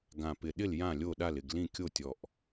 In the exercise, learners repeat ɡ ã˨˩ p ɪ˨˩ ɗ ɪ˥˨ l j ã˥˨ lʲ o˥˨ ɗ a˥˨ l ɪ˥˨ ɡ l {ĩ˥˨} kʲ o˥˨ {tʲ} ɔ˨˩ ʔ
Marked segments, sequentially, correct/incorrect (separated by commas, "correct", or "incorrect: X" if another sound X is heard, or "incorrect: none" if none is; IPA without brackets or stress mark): correct, correct